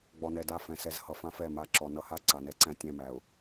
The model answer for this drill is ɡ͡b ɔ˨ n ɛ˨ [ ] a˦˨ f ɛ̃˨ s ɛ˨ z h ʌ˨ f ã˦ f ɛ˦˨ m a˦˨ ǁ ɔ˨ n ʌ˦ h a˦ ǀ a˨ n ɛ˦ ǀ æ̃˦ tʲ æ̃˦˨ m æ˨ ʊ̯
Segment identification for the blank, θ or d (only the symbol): d